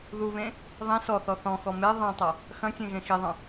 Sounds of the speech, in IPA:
ð u β ẽ | ðˤ ĩ s ɔ θ ɔ θ ɔ̃ x ɔ m e ðˤ ẽ tˤ ɐ | x ɐ̃ kʲ ẽ ɣ ẽ x i ðˤ ɐ̃

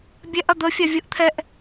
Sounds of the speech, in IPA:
bʲ ɛ ʔ ɐ d̪ ə fʲ a vʲ ə ʔ t̪ʰ ɛ ʔ

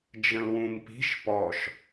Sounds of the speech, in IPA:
d͡ʒ ə̃ l w ũ m p i̤ ʃ p ɔ ʃ

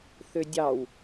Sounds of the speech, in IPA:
θ ø dʲ ɑ w

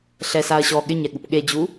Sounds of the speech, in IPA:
ɬ ɛ s a ɐ̯ ɕ ɔ ɠ ɪ ɲ ɛ ɠ u p ɠ e d͡ʑ u

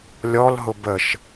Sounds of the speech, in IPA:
lʲ ɔ l ɦ ʊ b ə ʃ

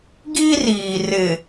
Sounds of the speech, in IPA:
ɡ i˦ r iː˨ r ɪ˨

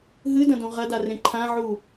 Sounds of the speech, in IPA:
ɦ ɨ d ɐ̃ d õ ʁ ɐ d a r ẽ ǃʰ ã ʕ u

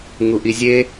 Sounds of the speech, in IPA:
ŋ u ʔ i zʲ e

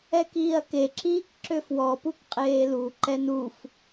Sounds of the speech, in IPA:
ɛ k iː ɐ̯ k e ǁ iː k ǁ ø f w ɔ p u k qʼ eː l u ǃ ɛ n u f

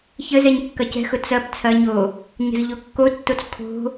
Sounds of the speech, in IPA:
ç ə z ɛ ɲ kː ɐ c ɛ̤ x ʊ t͡s ɐ b t͡sʰ ɐ ɲ o | ɲ ə̤ z ʎ o kː o tː o t͡s kʰ o̤

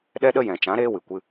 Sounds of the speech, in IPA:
ɗ ɛ˦ ɗ ə˦ j ɛ̃˨ t͡ʃ ã˨˦ ɾ eː˦ w ɨ˨ kʷ ɨ˧

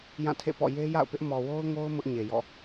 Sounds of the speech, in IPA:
j ã˦˨ tʰ ḛ˦˨ p ɔ̰˦˨ j e˦ j a̰˦˨ ʊ̯ p ɪ˦ ʔ m ɔ˨ w o˦ ʊ̯ ŋ o˦ ʊ̯ m ʊ˦ ʔ ɲ e˨ j ɔ̰˦˨

